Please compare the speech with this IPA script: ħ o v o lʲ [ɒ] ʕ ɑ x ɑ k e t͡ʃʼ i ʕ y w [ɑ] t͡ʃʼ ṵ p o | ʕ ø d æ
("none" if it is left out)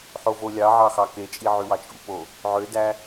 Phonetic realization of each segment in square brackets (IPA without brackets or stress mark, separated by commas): ɑ, ɑ